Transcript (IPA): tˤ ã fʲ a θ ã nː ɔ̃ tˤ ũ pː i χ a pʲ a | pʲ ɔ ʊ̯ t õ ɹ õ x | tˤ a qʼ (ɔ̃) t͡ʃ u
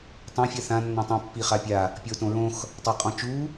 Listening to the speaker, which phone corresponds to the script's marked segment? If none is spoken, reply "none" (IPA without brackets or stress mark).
ɔ̃